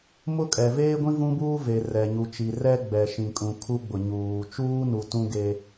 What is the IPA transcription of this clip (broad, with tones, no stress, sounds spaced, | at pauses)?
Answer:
m ʊ˦ kʼ ɛ˨ v eː˦ ɡʷ ĩ˦ v ũ˦ b uː˦ v e˨ r ɛ˨ ɲ u˨ t͡ʃ i˨ r ɛ˦ ɡ͡b ɛ˨ ʃ ĩ˨ kʼ ũ˨ kʰ u˦ ɡ͡b ʊ˨ ɲ uː˨ t͡ʃ uː˦ n u˨ t ũ˦ ɡ e˦